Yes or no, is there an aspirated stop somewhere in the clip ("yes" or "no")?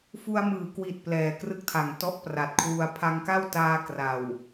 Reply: yes